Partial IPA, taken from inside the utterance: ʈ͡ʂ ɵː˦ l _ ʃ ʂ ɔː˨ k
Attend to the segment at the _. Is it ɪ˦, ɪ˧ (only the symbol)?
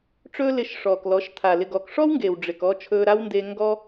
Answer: ɪ˧